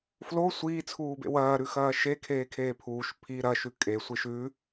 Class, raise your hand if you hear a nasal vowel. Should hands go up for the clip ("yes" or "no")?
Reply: no